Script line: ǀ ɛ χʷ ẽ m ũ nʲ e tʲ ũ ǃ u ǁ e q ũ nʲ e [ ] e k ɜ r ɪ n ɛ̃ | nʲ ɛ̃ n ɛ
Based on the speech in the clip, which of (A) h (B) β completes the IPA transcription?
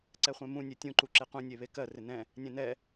B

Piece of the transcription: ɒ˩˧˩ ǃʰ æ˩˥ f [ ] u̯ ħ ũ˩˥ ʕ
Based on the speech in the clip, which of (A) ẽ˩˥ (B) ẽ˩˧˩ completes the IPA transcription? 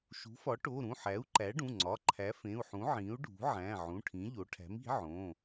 B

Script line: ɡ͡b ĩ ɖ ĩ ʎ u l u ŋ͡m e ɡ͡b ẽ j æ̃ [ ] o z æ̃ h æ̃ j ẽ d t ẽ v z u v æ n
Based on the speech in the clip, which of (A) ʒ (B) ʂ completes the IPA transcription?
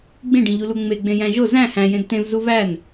A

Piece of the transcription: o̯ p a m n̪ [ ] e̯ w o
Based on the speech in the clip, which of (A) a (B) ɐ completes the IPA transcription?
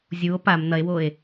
B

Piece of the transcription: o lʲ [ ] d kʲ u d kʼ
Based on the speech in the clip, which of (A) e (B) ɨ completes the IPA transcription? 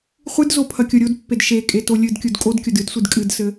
B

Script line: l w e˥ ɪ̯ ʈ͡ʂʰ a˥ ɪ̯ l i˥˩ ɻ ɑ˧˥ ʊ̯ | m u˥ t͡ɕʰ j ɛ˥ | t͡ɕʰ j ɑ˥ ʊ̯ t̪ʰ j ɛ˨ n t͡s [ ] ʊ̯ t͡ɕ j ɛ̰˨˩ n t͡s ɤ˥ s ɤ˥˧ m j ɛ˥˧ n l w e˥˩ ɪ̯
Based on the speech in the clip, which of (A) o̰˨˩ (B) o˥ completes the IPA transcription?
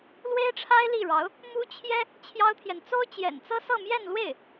B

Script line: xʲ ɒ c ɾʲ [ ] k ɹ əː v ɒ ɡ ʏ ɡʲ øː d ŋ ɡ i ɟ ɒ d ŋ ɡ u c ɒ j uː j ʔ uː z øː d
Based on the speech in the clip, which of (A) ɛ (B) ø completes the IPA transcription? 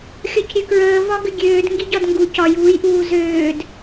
B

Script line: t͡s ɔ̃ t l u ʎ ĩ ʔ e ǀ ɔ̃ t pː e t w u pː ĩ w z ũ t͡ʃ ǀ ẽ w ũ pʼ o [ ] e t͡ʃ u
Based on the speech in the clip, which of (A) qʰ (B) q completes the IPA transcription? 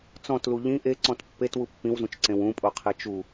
A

